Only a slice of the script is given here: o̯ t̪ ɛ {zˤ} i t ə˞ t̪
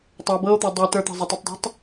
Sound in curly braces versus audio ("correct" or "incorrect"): incorrect